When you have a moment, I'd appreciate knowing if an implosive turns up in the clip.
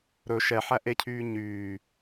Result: no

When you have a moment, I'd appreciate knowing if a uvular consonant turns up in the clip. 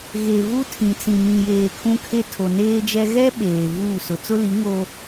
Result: no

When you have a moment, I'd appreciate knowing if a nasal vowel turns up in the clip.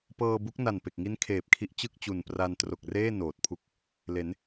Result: no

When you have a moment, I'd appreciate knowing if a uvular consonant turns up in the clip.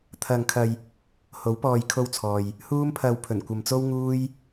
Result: no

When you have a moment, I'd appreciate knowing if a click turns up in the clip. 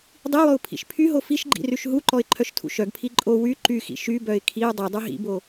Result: yes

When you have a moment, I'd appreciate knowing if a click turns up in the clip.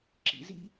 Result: yes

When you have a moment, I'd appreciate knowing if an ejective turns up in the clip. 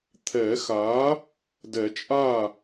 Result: yes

